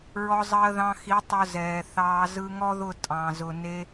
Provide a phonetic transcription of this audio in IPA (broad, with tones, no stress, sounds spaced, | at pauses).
ɹ ɔ˧ zˤ əː˧ ð ɑ̃˧ x i˨˦ tˤ ʊ˧ z ɛː˨ θ ɑː˧ z ɯ˧ ŋ ɔ˦ ð ʊ˦˨ tʼ ɑ̃˨ z ʊ˨ n e˧